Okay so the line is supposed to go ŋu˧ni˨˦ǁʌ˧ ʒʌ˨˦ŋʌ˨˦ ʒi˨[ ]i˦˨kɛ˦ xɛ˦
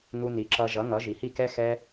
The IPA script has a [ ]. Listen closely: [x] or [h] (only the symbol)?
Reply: h